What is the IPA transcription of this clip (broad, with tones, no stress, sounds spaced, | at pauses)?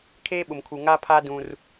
kʰ eː˦ ɓ ʊ˨ m kʰ u˨ ŋ a˦ pʰ a˦ d ũ˦ r